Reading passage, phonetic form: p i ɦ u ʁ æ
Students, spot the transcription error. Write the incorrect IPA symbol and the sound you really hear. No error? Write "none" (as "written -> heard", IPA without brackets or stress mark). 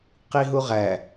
p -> q